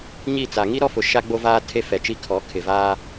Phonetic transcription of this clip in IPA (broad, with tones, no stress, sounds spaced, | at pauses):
ɲ i˦˨ t͡s a˨ ŋ i˦ ɾ ɔ˦˨ f ʊ˨ ʃ a˦ ɡ͡b o˦ v aː˦ tʰ e˦ f ɛ˨ t͡ʃ i˦ kʰ ɔ˨˦ kʰ ɪ˨ v aː˦